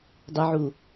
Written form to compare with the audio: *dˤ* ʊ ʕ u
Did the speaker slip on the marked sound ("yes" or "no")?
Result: no